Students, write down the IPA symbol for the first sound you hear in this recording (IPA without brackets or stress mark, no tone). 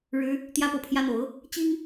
ɻ